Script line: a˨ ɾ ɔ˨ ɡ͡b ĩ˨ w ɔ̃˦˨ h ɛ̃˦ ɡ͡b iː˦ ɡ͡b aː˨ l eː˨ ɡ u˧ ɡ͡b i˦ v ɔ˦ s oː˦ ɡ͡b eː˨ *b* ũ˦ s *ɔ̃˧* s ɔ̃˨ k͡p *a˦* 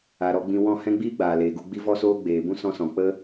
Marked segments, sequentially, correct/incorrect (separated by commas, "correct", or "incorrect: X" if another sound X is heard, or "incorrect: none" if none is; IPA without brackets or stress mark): correct, correct, incorrect: ə˦